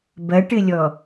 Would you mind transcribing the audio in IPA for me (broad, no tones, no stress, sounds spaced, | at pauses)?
b ɐ ʈ ɘ lʲ ɔ